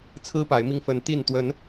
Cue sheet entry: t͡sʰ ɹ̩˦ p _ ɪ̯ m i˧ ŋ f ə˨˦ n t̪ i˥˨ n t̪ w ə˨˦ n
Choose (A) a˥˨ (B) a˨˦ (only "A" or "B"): B